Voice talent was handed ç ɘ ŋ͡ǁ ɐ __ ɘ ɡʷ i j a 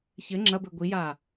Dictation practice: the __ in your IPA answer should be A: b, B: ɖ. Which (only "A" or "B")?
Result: A